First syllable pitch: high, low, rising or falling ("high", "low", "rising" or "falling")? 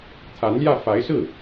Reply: rising